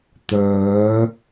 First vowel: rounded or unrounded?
rounded